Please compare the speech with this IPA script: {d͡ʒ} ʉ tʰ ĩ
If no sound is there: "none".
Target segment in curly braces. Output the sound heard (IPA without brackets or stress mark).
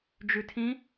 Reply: d͡ʒ